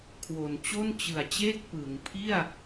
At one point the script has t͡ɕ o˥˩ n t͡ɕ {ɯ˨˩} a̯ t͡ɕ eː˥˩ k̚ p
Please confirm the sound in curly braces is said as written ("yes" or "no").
yes